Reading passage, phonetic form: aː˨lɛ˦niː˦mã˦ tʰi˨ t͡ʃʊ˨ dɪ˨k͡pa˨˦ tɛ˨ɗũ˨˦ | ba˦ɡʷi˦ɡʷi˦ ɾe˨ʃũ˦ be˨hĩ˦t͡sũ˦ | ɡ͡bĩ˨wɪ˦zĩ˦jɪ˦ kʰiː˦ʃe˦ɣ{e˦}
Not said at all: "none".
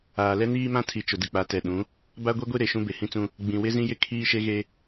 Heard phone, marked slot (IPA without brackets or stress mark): e˦